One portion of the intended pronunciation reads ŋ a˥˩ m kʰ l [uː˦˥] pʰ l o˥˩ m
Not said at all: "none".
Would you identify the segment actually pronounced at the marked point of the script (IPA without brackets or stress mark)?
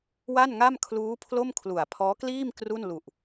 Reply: uː˦˥